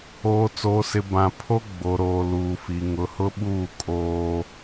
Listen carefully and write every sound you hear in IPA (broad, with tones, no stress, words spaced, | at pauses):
oː˨t͡soː˨sɪ˨ bã˨ pʰo˦ ɡ͡bo˨ɾoː˨ luː˨fi˨ ŋʊ˨hʊ˦ɓuː˦˨ kʼoː˦